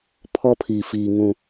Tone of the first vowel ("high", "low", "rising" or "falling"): high